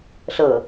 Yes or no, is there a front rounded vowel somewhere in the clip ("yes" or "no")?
no